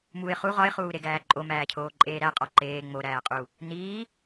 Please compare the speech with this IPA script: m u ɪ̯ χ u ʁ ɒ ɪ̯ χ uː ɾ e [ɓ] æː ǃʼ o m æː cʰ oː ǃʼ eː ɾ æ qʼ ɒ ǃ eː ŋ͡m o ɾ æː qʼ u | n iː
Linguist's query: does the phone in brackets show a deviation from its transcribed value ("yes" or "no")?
yes